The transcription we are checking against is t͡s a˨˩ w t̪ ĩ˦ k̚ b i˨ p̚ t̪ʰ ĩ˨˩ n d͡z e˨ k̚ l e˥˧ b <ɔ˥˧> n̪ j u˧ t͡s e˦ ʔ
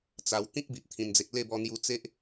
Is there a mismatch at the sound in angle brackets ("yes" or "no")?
yes